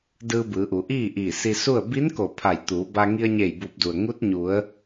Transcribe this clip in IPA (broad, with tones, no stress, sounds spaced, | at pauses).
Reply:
d ɯː˧ b ɯː˩˧ ʔ u˩˧ ʔ iː˥˨ ʔ iː˧˩ s i˧ s u˥˨ ə̯ b i˧˥ n k o˧˩ pʰ a˧˩ j t̪ uː˩˧ b a˧ ŋ i˧ ə̯ ɲ e˧˩ j b uː˧˩ p̚ d u˩ ə̯ ŋ u˧˥ t̚ ɲ u˩˧ ə̯